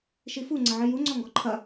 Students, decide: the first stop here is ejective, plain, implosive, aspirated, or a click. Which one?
click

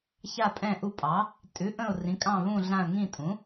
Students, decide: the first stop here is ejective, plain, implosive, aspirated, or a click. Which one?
ejective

